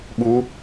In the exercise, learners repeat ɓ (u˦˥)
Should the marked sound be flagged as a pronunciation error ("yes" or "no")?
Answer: no